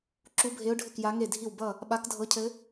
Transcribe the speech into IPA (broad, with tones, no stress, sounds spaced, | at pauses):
ǁ u˧˥ bʱ e˧˥ ʊ̯ ɖʱ ɘ˥˨ k j a˧˥ ŋ e˥˨ dʱ i˥˨ w b ʌ˥˨ | ɓ a˧˥ k dʱ ɤ˧˥ cʰ ɘ˧˥